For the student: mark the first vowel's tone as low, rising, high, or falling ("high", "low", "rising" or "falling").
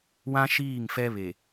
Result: high